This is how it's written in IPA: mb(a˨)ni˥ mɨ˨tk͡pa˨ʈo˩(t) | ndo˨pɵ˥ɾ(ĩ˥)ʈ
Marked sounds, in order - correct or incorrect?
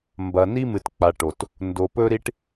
incorrect, correct, incorrect

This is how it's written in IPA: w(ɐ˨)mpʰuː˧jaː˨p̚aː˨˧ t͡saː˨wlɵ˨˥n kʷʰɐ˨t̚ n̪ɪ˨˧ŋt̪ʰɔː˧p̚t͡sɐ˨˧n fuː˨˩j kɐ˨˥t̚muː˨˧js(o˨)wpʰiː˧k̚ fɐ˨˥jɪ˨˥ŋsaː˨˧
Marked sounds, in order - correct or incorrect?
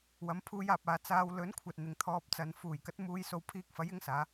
incorrect, incorrect

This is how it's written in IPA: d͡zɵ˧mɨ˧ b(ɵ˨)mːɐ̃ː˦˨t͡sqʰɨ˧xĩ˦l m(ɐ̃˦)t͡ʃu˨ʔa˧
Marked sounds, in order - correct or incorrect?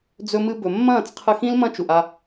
correct, correct

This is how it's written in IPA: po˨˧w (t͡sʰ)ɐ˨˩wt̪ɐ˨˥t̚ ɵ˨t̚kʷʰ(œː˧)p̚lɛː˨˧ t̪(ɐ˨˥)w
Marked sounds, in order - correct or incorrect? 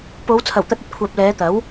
correct, incorrect, correct

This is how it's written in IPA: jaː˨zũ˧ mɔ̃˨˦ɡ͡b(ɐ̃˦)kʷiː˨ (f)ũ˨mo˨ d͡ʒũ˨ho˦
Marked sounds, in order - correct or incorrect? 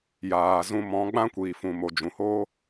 incorrect, correct

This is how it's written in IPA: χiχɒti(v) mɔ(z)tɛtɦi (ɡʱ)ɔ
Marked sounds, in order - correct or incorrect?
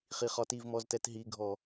correct, correct, correct

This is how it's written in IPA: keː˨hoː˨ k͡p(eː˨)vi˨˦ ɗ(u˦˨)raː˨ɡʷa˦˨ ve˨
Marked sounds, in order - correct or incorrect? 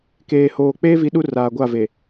incorrect, incorrect

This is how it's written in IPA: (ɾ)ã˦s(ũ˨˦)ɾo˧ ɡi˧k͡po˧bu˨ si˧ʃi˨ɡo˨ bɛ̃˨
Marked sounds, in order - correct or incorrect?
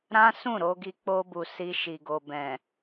correct, incorrect

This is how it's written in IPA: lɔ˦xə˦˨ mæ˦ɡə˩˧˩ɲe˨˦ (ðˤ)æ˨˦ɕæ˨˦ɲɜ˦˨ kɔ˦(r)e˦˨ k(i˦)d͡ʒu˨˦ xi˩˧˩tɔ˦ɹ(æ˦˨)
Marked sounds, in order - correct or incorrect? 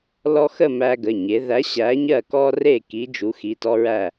incorrect, correct, incorrect, correct

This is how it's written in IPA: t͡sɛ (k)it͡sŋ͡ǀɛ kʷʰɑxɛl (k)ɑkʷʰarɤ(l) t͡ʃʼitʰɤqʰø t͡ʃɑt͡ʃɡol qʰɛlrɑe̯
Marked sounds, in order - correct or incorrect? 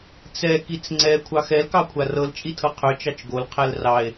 correct, correct, correct

